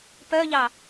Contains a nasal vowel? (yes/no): no